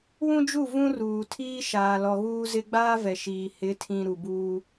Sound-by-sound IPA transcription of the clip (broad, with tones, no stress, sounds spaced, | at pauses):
w ũ˦ d͡ʒ u˦˨ v ũ˦ r uː˨ tʰ iː˦ ʃ aː˨ l ɔ˨ ɣ uː˦ z ɪ˦ ɡ͡b aː˦ v ɛ˨ ʃ iː˨ h ɪ˨˦ tʰ ĩ˨ ɾ u˨ b uː˦